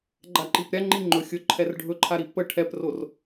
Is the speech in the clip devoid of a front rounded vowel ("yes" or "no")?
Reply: yes